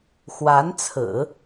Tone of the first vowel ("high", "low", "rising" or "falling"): rising